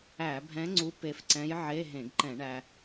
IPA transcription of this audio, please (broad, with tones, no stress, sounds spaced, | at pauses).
æ˧˩˧ bʱ ɛ̃˧˥ ŋ͡ǀ u˧˥ p e˧ f ǀ ɛ̃˧˥ j ʕ e˧˥˧ ɦ ẽ˧˩˧ ɡ ǃ ɛ̃˧˩˧ ɳ æ˧